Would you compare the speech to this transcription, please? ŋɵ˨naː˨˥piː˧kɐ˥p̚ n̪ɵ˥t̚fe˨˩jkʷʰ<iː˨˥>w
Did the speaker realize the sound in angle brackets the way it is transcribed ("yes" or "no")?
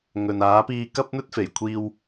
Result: no